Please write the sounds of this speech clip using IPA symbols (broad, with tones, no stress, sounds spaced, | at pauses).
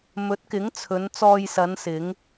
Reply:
m ɵ˨˥ t̚ k ɪ˨˥ ŋ t͡sʰ ɵ˨˧ n t͡s ɔː˧ j s ɐ˨˧ n s ɪ˨˧ ŋ